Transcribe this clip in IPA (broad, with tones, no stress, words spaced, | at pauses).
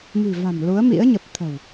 mi̤˨˩va̤˨˩m lu˨˦ə̯mḭ˧˥ə̯ɲə˨˩p̚ t̪ʰə̤˨˩w